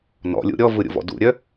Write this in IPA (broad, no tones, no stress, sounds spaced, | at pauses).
n ɔ̰ lʲ ṵ ɾʲ ɔ v ɯ ɾʲ ṵ v ɔ̰ d ṵ ɾʲ œ